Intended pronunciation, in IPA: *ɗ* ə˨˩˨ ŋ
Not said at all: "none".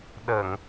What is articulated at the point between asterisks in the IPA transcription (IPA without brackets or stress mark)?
ɗ